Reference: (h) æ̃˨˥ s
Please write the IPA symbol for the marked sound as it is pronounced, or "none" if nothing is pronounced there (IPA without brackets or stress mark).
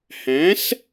h